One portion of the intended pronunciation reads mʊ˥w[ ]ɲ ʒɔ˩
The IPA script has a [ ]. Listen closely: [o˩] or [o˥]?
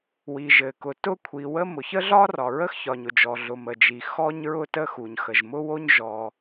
o˥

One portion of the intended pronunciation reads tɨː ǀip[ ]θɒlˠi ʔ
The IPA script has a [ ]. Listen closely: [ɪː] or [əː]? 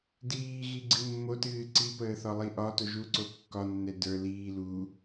əː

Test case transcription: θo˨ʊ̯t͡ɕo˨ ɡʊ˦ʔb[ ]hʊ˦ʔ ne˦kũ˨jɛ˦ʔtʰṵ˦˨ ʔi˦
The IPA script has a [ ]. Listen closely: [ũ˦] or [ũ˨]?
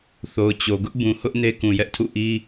ũ˨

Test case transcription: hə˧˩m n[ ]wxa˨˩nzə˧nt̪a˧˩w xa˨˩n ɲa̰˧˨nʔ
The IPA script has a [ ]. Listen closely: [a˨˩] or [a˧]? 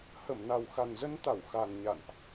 a˨˩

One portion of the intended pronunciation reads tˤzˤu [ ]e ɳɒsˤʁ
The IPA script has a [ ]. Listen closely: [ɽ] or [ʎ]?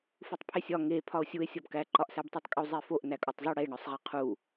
ɽ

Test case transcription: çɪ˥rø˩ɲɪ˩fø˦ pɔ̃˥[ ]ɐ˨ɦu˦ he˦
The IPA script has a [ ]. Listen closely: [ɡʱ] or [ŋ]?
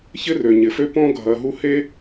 ɡʱ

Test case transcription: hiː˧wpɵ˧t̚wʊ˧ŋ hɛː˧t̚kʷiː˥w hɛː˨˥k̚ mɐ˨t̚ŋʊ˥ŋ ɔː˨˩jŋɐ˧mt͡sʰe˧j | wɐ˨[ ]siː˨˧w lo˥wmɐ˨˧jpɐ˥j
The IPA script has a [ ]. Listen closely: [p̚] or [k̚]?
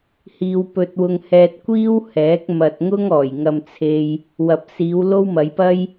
p̚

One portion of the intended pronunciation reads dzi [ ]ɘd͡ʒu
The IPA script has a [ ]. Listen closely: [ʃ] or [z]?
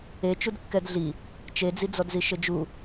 ʃ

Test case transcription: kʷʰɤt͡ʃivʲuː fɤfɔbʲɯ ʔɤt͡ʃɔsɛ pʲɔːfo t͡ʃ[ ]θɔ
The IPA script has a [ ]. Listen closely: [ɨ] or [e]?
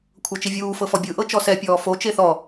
e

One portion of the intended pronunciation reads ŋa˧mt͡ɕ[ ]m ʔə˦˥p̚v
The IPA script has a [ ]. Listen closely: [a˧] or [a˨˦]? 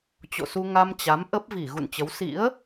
a˨˦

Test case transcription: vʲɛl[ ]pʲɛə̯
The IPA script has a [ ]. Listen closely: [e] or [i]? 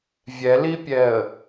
i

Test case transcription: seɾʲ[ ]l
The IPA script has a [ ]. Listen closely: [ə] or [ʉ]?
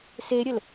ə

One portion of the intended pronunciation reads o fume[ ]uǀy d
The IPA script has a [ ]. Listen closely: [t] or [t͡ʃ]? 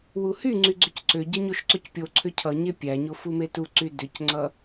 t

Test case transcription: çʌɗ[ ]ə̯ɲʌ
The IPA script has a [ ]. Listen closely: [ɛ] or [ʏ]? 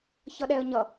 ɛ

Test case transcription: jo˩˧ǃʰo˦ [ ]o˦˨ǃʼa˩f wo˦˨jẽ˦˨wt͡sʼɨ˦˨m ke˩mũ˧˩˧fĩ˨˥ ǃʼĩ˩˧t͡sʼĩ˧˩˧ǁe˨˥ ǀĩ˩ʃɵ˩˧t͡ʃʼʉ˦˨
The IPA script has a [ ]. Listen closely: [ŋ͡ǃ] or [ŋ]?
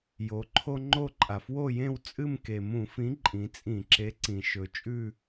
ŋ͡ǃ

